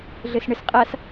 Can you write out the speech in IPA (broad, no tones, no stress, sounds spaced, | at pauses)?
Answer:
ɮ ɘ s ɳ ɘ s qʼ a s